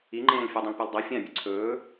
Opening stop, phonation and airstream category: click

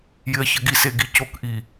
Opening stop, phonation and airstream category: plain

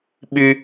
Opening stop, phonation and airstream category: implosive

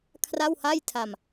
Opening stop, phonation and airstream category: aspirated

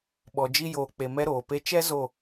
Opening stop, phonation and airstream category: implosive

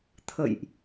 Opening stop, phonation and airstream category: aspirated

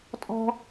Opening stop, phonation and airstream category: ejective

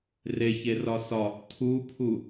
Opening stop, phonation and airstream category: aspirated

